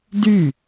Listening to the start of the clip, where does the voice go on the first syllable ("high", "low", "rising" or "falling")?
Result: falling